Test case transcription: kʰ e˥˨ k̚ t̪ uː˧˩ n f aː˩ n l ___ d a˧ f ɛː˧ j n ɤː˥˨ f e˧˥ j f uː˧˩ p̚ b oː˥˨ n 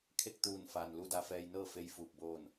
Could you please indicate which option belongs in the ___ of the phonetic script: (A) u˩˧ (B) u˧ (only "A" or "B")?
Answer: B